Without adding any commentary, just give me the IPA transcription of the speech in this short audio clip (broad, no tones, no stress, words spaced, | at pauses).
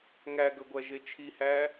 ŋæɡɵɡʷæ ʒet͡ʃʰihæ